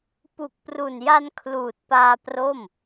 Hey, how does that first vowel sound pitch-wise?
low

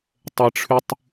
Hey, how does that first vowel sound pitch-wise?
high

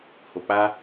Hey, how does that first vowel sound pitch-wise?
low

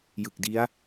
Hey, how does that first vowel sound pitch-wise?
low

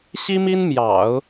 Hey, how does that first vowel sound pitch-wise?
high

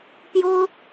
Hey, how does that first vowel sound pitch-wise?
high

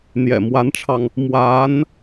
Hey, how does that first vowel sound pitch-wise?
low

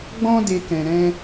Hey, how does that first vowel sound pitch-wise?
high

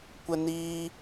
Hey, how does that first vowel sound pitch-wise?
high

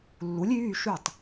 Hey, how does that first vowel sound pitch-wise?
rising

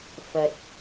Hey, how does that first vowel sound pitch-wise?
low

